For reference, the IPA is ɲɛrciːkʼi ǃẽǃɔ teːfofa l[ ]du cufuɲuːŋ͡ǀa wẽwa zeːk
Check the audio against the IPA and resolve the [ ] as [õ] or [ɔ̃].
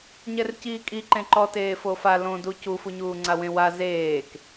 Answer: õ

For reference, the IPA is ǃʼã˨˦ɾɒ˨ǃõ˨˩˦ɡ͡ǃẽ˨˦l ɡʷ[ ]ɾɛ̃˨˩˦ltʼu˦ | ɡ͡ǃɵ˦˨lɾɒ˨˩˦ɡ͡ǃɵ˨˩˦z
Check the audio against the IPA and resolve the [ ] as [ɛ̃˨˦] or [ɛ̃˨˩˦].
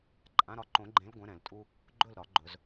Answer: ɛ̃˨˦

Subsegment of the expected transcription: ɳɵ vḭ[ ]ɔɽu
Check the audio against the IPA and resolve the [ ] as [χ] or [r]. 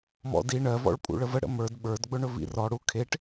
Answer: r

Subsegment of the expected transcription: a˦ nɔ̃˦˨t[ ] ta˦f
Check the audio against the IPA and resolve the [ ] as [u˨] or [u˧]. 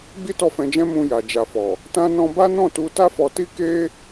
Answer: u˧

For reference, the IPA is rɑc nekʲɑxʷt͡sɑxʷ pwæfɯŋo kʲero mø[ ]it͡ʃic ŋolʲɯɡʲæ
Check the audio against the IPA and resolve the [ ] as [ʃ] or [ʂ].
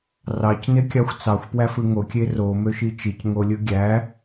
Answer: ʃ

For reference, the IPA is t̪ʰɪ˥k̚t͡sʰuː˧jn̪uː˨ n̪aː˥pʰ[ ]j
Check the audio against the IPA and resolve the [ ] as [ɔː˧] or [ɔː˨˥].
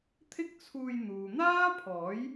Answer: ɔː˨˥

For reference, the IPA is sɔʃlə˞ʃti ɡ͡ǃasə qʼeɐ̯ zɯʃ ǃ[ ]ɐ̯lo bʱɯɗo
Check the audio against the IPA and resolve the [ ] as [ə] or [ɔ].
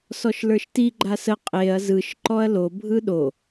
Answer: ɔ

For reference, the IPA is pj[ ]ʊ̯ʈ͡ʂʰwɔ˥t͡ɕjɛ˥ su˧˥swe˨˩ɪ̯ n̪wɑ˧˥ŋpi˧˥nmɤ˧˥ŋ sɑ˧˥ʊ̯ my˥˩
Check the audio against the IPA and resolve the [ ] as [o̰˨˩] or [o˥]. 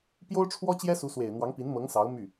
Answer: o˥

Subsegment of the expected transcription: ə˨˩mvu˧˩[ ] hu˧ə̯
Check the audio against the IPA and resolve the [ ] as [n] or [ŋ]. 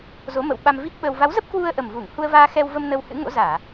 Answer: ŋ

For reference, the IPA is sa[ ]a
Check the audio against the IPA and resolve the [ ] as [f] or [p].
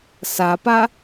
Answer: p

